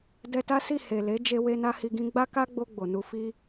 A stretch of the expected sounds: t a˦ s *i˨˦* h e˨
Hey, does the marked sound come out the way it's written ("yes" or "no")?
no